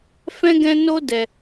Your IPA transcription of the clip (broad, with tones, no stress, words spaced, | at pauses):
fɛ̃˦ɡɛ̃˦no˦dɛ˧